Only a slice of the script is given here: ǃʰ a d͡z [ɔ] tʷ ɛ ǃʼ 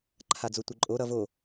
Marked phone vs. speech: incorrect: o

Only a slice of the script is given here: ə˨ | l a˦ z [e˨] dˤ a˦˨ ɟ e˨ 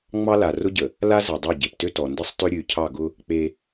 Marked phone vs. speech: incorrect: ɛ˨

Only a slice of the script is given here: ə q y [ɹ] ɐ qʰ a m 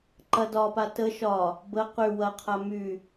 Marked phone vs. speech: incorrect: w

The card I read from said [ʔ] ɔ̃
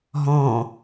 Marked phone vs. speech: incorrect: ɦ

